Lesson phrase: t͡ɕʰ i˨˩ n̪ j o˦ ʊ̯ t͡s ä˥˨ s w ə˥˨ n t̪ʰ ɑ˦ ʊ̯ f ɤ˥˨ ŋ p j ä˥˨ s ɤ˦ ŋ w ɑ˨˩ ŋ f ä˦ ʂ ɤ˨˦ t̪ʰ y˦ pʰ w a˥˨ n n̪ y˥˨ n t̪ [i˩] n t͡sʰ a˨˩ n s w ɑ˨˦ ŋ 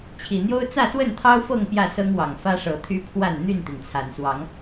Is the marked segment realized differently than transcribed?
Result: no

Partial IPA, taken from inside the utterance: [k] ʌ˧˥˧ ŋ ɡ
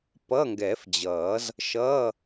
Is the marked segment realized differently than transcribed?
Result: yes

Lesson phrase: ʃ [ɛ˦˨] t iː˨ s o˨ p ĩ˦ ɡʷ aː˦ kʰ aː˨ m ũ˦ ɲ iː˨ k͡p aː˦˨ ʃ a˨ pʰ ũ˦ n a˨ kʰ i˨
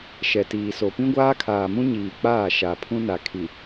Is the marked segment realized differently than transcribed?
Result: yes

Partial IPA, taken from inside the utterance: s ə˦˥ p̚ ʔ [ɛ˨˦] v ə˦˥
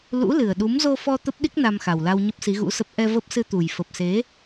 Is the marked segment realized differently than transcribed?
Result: yes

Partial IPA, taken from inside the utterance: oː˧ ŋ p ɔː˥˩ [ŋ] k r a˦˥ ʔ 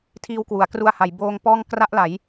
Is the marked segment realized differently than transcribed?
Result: no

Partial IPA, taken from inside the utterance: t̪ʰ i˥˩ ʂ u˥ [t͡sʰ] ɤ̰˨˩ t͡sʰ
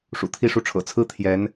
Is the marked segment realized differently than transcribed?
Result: yes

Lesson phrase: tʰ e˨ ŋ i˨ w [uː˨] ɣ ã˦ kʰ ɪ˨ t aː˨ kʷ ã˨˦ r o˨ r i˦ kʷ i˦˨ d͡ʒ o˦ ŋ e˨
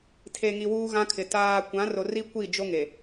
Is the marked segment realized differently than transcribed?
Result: yes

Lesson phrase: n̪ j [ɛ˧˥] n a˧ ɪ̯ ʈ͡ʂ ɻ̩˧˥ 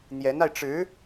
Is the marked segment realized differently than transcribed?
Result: no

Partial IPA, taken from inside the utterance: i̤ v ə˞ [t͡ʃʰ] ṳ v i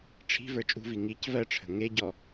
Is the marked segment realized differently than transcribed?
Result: yes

